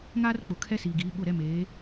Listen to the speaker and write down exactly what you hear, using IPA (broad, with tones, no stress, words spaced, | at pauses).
ŋaː˦rk͡pʊ˨ kʰɛ˦siː˨ɡiː˨˦ ɓʊ˦˨ ɾɛ˦meː˨˦